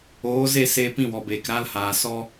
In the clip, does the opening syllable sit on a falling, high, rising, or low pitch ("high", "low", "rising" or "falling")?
rising